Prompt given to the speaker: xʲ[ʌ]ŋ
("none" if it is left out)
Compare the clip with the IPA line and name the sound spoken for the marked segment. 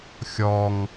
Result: ɔ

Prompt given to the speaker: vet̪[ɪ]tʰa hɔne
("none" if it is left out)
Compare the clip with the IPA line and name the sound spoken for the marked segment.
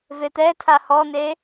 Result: ɛ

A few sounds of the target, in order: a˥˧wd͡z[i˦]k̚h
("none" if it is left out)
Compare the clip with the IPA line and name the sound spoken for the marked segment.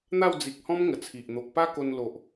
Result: i˨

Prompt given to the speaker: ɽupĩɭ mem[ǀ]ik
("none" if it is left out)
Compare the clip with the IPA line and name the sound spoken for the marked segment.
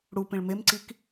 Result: ǀ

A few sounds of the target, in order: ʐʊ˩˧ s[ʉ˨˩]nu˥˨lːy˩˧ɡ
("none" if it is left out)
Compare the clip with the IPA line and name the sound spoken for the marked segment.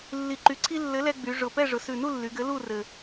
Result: ʉ˨˩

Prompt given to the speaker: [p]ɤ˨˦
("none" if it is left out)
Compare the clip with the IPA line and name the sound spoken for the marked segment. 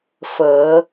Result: f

